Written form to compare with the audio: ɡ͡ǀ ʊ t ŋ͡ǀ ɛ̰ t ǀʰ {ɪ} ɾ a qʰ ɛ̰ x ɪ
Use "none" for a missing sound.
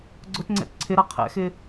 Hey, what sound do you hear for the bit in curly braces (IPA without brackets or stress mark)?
ɪ